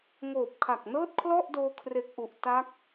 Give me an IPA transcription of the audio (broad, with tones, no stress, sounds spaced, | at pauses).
ŋ oː˨˩ p̚ kʰ a˨˩ k̚ n ɤː˥˩ t̚ kʰ l ɔ˥˩ ʔ d oː˧ kʰ r e˨˩ k̚ ʔ u˨˩ ʔ t a˦˥ k̚